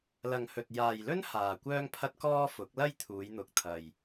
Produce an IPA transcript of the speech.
lɐ˨ŋhɵ˨t̚ jaː˨jlɵ˥n haː˨kʷœː˥ŋpʰɐ˥t̚kɔː˥ fʊ˨˥k̚lɐ˥jt̪ʰuː˨˧jn̪ʊ˨k̚ t̪ʰɐ˨j

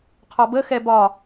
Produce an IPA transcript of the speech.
qʰɒbəxɛ bɒ

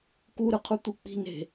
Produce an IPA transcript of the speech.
kuɾɯqʰu t̪uk͡pi̤n e̤

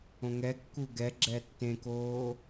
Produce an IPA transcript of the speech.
õŋɛkːu ɡɛɡ͡ǁɛ tːẽkoː

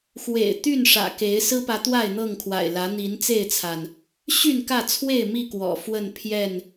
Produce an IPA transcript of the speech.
xwḛ˨˩ɪ̯t̪y˥˨n ʂä̰˨˩ke˨˦ɪ̯ sɹ̩˦pä˨˦ t̪wa˥˨ɪ̯n̪ɤ˥˨ŋkʰwa̰˨˩ɪ̯lä˨˦ n̪i˨˦nt͡se˥˨ɪ̯t͡sʰa˩n | ɕy˥˨nkä˥˨t͡sʰwe˥˨ɪ̯ mi˥˨ kwɔ̰˨˩fwə˥˨npʰjɛ˥˨n

